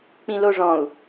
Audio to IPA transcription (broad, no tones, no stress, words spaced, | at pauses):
k͡pĩloʐɔ̃u̯